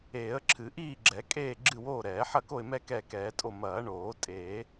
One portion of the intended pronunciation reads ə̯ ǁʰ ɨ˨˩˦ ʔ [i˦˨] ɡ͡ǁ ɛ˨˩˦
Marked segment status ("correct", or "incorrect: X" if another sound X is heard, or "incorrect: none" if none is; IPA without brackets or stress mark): incorrect: iː˦˨